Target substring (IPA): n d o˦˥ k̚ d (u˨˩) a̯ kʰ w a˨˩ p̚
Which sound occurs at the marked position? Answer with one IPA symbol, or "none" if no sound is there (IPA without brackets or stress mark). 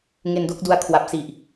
u˧